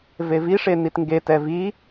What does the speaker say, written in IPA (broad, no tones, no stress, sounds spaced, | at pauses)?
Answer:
v e v i ʂ e n i t ŋ ɡ e t ɛ v i